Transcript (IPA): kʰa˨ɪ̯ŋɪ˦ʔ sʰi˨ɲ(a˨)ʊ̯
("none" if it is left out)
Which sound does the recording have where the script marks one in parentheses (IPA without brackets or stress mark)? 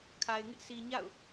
a̰˦˨